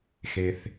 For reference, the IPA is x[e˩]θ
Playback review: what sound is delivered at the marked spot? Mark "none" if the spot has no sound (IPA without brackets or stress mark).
e˩